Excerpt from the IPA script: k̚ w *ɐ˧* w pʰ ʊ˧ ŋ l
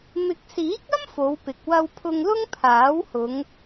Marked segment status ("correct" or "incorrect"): correct